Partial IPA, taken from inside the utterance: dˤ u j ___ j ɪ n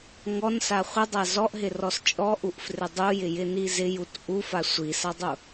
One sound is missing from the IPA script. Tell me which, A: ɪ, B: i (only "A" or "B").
A